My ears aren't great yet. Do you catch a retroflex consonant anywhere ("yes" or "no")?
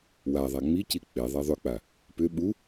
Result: no